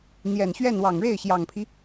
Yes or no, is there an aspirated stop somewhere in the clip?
yes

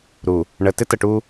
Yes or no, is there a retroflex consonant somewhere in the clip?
yes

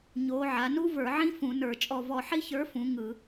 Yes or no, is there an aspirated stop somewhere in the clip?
no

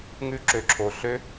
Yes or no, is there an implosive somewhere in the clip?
no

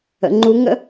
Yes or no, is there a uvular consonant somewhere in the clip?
no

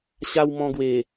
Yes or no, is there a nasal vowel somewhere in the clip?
yes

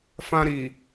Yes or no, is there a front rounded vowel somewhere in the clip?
no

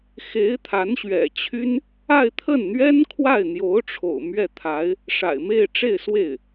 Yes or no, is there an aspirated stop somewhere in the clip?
yes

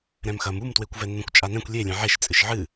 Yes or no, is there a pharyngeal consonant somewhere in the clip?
yes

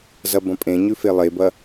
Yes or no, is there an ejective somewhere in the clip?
yes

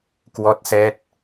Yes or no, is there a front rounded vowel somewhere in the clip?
no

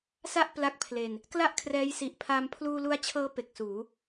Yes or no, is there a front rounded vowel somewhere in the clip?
no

